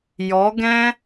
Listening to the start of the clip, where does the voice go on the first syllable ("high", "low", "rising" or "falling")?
rising